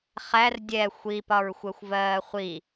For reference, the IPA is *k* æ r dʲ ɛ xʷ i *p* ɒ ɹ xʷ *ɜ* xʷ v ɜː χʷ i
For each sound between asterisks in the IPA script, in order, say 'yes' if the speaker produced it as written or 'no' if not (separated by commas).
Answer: no, yes, yes